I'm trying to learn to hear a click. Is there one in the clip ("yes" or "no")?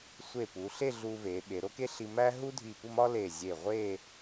no